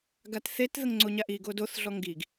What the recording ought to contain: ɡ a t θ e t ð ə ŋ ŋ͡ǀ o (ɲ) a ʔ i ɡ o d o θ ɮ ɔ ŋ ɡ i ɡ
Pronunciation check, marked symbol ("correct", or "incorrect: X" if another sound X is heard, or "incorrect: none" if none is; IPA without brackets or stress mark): correct